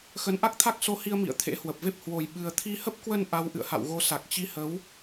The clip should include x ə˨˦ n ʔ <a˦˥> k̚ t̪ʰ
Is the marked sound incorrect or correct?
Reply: correct